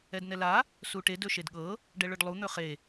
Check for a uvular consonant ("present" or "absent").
present